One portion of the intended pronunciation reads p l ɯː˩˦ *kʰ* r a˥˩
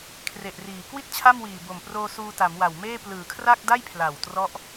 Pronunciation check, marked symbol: correct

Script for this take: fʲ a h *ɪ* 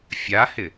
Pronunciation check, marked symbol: correct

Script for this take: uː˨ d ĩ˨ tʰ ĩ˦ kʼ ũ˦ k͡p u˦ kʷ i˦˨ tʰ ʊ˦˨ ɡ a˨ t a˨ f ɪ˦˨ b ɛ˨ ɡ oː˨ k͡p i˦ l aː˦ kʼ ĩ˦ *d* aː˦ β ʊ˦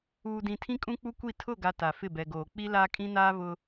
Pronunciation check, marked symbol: incorrect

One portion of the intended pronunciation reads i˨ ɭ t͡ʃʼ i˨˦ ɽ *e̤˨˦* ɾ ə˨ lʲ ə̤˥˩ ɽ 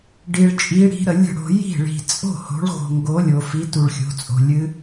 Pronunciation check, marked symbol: incorrect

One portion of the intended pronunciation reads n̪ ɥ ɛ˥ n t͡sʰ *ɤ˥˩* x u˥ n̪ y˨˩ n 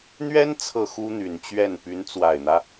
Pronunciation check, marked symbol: correct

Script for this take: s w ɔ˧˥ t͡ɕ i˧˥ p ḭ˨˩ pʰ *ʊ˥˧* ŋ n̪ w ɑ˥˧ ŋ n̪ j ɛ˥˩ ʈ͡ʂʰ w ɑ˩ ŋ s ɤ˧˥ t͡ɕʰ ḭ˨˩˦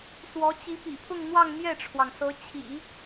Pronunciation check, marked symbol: correct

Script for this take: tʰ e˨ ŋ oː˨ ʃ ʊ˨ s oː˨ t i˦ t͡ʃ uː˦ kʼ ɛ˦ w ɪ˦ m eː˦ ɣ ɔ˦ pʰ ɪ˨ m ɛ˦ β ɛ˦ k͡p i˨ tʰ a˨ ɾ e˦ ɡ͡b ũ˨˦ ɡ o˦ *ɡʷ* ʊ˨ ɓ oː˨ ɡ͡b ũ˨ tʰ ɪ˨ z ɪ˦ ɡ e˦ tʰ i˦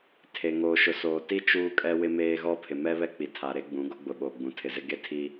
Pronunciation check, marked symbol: incorrect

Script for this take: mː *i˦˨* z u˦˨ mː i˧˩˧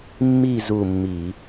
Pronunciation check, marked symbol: correct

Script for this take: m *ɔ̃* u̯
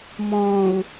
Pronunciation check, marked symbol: correct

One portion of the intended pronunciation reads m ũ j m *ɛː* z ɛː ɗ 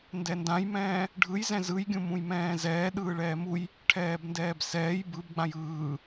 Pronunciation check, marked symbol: incorrect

